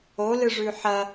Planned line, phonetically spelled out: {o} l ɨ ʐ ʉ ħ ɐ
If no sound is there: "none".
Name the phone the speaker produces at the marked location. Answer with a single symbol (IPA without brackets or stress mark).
o